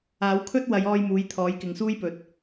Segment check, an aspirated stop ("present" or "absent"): present